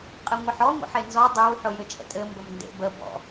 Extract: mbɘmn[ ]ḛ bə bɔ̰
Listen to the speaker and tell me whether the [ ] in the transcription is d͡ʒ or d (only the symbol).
d